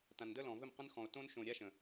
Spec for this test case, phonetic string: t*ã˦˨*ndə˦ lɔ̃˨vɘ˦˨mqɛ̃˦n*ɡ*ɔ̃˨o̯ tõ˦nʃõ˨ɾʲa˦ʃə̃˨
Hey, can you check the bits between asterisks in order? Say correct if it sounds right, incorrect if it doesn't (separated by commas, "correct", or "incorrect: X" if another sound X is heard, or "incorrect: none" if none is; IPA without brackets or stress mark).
incorrect: ã˨, incorrect: x